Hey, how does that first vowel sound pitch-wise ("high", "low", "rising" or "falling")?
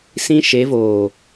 high